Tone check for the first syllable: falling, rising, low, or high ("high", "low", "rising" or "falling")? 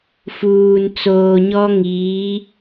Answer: low